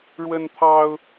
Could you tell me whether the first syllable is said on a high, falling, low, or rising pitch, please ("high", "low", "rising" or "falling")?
high